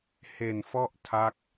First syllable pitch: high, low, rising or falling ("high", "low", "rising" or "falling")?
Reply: low